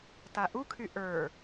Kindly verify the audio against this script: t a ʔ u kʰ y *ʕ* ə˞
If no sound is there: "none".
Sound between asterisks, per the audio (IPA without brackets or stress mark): ʔ